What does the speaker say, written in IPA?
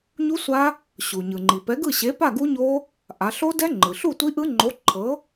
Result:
ɲu˦˥sʷa˦˥ | ɕu˩ ɲɯ˩ŋ͡ǃi˩pɛ˨˥ɡɯ˥˨ ɕe˨˥pa˥˨ɡu˦˥ɲo˦˥ | ʔa˩˧ɬo˦˥dɛ˦˥ ŋ͡ǃɯ˩ɬu˥˨tʷi˦˥ʔɯ˦˥ ŋ͡ǃo˨˥ ǃʰɤ˨˥

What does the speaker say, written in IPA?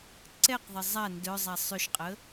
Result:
ǀɛqðˤə zˤa ndœzˤa sˤʏʃqʼə

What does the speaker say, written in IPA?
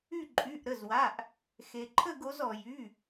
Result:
y˦˨ ǃʼy˩˧˩ʔ ɾə˩˧˩zwa˩˧˩ʔ | xe˩ǃʰə˦˨ɡo˩˧z ɔ˩jy˩˧˩

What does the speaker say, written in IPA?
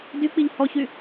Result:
dyk͡piʎ hɔçy

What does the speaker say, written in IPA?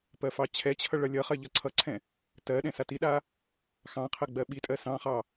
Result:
pɜfɑt͡ɕʰɛt͡ɕʰʌ ɭʌlʲʌχɜ ʎʌǀʰʌǀʰɛ̃ | tɜ ɗɛ̃satiɗa | xɑ̃qʰɜ ɡ͡bɜɓitʼɜ sɑ̃χɑ

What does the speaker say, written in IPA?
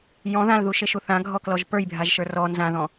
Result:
jɔ̃ ðãlðuʃeʃu θãɡʱɔklɔʒ pə˞jbʱaʒʃə˞ rɔ nzãðɔ̃

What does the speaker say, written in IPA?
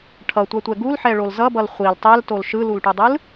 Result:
ʈʰʌtʷatʷɛ ɡulħɛɭol zʌbʌl χʷil tˤɛltol ʃɯlulʈudˤɯl

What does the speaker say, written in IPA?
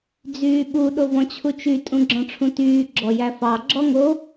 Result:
d͡zyːɓu ɗovɔ̃t͡ɕʰut͡ʃy tʼũɡ͡ǁɔ̃ʈ͡ʂʰũtyː ɡ͡ǁɔjæfɑ ɡ͡ǁɔŋo

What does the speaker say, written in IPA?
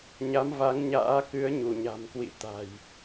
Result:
ɲa˨˦mva˨˦ŋɲa̰ː˧˥ kɨ˨˦ə̯ɲu˧˩ɲa̤˨˩mkwḭ˧˨ t̪a̤˨˩j

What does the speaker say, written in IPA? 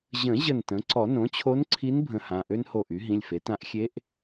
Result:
ʑə̃˨˩˦ ʑə˧˩ntə̃˩˥ ǀɔ˨˩˦nõ˩˥t͡ɕʰo˧˥nǀʰi˧˥n bʱə̃˧˥hã˩˧˩ ʔø˥nho˧˩ʔy˩˥ ɦĩ˩˧˩lʲfe˩˥ tã˧˥ʔ xʲe˧˥ʔ

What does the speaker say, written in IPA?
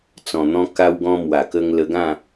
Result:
t͡sɔ̃˨˩n̪ɔ̃˧ ka˧wɡɔ̃˧mwa˨˩kə˧ŋ lə˧ɡã˥˧

